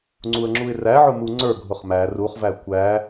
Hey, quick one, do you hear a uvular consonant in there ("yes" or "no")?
yes